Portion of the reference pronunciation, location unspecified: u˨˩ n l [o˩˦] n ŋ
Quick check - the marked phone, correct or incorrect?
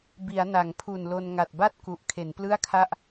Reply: incorrect